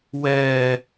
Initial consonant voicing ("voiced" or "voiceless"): voiced